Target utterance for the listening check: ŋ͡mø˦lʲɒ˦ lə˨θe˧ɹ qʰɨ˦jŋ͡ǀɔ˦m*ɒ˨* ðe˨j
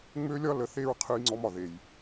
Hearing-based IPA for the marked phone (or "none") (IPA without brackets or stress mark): ɒ˨